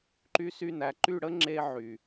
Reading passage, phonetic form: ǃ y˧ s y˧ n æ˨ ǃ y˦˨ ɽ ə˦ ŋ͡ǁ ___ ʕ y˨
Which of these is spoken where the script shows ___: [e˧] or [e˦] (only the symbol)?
e˧